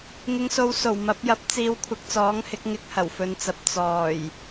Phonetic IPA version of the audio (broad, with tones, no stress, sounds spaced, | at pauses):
ŋ ɪ˨˧ ŋ s o˨˧ w s o˨˩ w m ɐ˨˥ p̚ j ɐ˨˥ p̚ t͡s iː˨˧ w kʷʰ ɪ˨˥ k̚ t͡s ɔː˨˥ ŋ h ɪ˨˥ k̚ ŋ ɪ˧ k̚ h ɐ˨˩ w f ɵ˨˧ n t͡s ɐ˨ p̚ t͡s ɔː˨˩ j